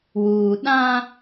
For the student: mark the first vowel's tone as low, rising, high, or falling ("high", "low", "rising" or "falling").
low